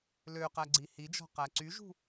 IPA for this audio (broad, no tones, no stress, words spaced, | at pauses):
løqæɡ͡ǀi hid͡ʒɔ̤ qæǀyʒṳ